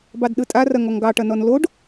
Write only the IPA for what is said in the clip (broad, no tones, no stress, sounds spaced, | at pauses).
b ɑ d ɗ ɯ tʼ a r ɐ ŋ ɔ ŋ ɡ ɑ ʈ ɐ n ɔ n l o ɖ